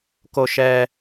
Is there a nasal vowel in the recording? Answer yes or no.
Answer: no